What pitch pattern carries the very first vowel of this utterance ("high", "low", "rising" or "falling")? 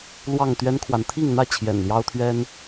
falling